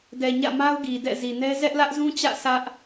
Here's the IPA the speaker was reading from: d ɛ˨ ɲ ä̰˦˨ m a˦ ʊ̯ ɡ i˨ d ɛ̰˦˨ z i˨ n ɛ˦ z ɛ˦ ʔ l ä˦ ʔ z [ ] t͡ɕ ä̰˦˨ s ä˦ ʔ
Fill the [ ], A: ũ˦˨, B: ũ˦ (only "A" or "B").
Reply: B